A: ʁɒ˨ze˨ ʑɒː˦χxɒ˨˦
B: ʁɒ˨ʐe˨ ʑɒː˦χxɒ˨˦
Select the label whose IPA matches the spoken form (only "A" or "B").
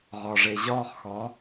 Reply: B